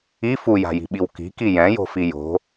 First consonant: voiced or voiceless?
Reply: voiceless